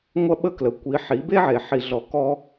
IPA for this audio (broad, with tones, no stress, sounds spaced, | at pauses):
ŋʷ ɐ˦ ɓ ə˦ k l ə˨ kʷ i˨˦ ħ i˨˦ b e˦ ʕ e˨ ħ i˨ ɮ ɔ˨ k ɔ˦